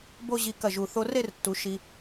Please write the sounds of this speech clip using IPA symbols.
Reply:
b o˥˧ ʑ i˧ k ɐ˧˩ ʒ u˧˩ θ o˧ r e˥˧ r tː u˩˧ ʃ i˧

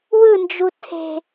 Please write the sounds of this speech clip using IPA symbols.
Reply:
w ɯ n d͡ʒ u tʰ e̤

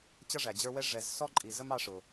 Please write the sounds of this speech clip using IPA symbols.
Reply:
t͡ɕ ʌ˥ ʐ æ˩ d͡ʑ ə˞˦ w ɛ˥ ʐ ɛ˨ z s ɔ˥ ǃʼ i˨ z ə˥ m ɑ˦ ʂ ʊ˩

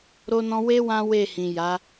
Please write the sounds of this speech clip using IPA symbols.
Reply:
ɾ o˦ n ɔ̃˦ w e˦ w ã˦ w e˦˨ h ĩ˨ j a˨˦

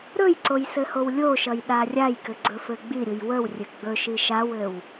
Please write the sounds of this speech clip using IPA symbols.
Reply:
ɾ ɵ j ǀ o j s ɘ h o w lʲ o ʃ ʌ j ɗ a rʲ a j k ɘ ɡ͡ǀ ɵ f ɘ ɡ͡b i ɾʲ u j w ə w rʲ ɘ ɡ͡b ɵ ʃ i ʃ a w ɘ w

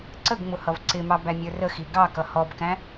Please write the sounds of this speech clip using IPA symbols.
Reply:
ǀ ə ɡ ŋ͡m ʊ h ʌ v ǀ ɪ m ɑ b æ mʲ ə˞ r ə x i ɡ ɑ k ʌ h ɔ b k æ̃

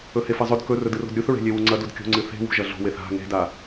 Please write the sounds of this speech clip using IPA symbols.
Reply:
ɵ h e f ɐ zˤ ɵ d k ɵ r ɵ d ɨ r o̤ d ɾʲ u θ ɹ e̤ lʲ e w u ŋ͡ǀ ɐ d u d kʲ o̤ ŋ͡ǀ ɨ θ e̤ w ṳ ʒ ɐ ɮ o̤ w e θ a̤ ŋ e̤ d a

